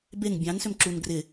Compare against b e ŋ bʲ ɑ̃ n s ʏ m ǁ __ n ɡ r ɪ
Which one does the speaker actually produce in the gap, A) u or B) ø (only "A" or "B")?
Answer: A